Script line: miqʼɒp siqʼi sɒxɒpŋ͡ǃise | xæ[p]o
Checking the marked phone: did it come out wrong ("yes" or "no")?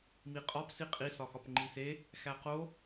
yes